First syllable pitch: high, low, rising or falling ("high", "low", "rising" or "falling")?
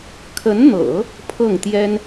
rising